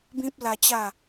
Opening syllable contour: high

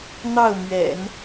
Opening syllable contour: falling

